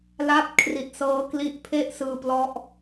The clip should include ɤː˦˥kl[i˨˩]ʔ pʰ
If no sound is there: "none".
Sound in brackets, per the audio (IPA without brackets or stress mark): i˦˥